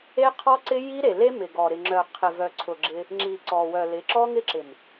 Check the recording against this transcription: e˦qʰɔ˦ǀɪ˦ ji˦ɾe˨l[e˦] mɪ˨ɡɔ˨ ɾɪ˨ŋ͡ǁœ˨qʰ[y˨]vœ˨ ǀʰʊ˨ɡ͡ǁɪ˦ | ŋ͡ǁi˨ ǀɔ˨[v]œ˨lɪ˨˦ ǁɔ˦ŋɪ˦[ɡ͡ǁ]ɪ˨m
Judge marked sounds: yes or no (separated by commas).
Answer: yes, no, no, no